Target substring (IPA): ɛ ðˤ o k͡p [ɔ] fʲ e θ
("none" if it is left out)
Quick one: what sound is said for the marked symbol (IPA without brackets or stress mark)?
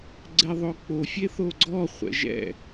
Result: o